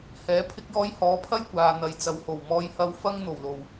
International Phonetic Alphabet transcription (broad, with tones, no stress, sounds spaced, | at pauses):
h ɛː˨˥ pʰ ɪ˥ k̚ j ɔː˥ j h ɔː˨˥ pʰ ɐ˥ j kʷ aː˨ n̪ ɐ˨˧ j t͡s ɐ˨ w h o˨˩ w m ɔː˥ j h ɐ˥ w f ɐ˥ ŋ n̪ o˨˩ w l o˨˩ w